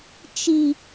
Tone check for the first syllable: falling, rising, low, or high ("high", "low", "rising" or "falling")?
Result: low